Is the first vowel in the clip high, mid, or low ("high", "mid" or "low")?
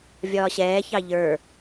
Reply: low